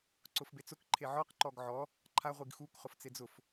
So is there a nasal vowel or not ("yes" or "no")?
no